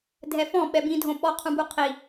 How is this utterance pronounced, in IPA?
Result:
dʱɛfɔ̃ ɓɛbĩdʱõ ɓɔqʰũbuqʰi

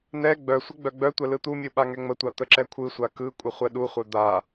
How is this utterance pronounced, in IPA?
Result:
nɛ ɡ͡bœsʷə ɡ͡bœɡ͡bœtʷɛ lɯt̪umʲɯ ɓaŋɛŋ͡mətʷa t̪əǁɛkʷʰɯsʷa kɯkʷʼə χʷɛɗuχʷœ d̪a

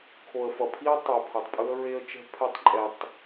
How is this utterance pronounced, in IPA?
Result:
kʰo˨ə̯fʌ˨pʰi˦ə̯ tˤu˨pʰʌ˨tˤpʼɯ˦ə̯ ɹe˦ə̯t͡ʃɛ̤˦pʰɛ˦˨tˤǃʼɛ˨tˤ

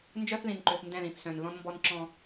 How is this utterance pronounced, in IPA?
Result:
nd͡ʒœ˦θðĩ˨nǃø˨θ ndɛ̃˦˨ðĩ˨θsœ̃˨n ðɔ̃˦nmbɔ˦nǁɔ̃˦

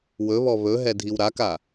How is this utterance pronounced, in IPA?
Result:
wɵβɔ βɵɦɛ dʱiwɾaka

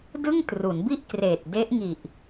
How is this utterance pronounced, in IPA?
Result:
dɯ˥˩ŋtru˩˦nbi˥˩ʔkreː˨˩t̚ de˦˥ʔŋi˨˩ʔ

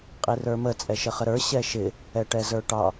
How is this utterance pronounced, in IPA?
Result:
qʼirə˞mə t͡sʼɛʃəχəɾə˞ ɕɛʃɪ | ɛʈɛzə˞ʈɑ

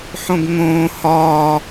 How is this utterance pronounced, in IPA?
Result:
ħõɡŋõː hɒː

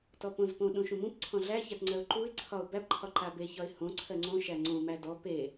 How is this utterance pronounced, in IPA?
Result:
tɔpõzpõ ɗũʃũmũp ǀʰɔ̃ɮæçat ŋ͡ǀɜʊ̯ǃuɪ̯ǀʰɒʊ̯ bæbǃʰɒ ǃabeçɒɪ̯ hõ ǀʰɜŋ͡ǀõʃæ ŋ͡ǀõmæ dɔ pe

